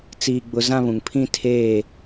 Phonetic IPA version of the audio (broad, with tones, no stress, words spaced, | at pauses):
t͡siː˦ɡ͡bʊ˦ zã˦βũ˨ŋ pʰĩ˦ tʰeː˦˨